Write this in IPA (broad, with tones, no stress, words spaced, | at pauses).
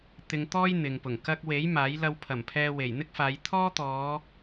t̪ɪ˧ŋt̪ɔː˥j n̪ɪ˨ŋpʊ˨˩ŋ kɐ˧k̚we˨˥j maː˨˥jlɐ˧w pʰɐ˨˩mpʰɛː˧ we˨˩jn̪ɪ˥k̚faː˨˧j t̪ʰɔː˥t̪ɔː˨˧